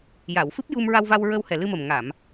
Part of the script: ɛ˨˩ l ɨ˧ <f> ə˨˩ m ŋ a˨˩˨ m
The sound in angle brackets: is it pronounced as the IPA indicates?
no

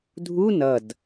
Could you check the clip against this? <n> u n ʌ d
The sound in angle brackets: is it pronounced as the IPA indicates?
no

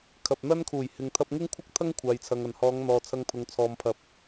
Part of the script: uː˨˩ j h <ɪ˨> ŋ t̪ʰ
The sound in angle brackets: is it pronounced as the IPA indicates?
yes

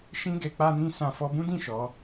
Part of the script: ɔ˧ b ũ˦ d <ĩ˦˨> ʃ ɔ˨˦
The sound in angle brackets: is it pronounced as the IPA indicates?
yes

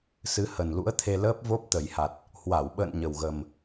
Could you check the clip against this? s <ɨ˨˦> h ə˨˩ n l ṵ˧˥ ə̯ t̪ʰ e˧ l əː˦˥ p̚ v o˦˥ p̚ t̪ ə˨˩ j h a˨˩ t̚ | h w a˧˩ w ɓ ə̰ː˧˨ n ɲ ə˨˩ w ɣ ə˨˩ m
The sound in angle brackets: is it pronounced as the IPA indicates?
yes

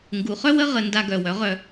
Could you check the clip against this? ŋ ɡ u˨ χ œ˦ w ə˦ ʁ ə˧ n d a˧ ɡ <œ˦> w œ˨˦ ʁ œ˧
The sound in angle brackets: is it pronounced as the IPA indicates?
no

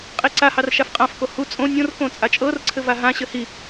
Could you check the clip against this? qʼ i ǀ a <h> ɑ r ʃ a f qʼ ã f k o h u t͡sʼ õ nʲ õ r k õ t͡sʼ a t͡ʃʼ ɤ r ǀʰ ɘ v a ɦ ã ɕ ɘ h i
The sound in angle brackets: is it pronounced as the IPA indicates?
yes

